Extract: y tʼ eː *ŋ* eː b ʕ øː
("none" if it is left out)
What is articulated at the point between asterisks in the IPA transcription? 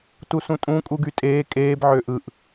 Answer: kʼ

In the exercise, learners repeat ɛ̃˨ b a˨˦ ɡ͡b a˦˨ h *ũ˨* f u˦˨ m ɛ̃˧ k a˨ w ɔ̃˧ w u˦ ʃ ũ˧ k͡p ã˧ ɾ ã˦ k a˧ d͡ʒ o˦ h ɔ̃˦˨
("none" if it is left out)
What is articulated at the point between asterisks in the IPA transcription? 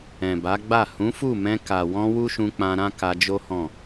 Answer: ũ˨˦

